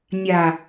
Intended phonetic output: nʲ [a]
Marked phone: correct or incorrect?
correct